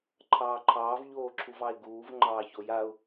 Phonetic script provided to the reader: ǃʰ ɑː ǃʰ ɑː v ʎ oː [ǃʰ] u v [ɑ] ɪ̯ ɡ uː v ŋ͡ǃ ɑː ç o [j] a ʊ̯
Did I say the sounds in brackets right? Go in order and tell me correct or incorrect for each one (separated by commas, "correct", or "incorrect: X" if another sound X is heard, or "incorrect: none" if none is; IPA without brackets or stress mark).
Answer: incorrect: ǁʰ, correct, correct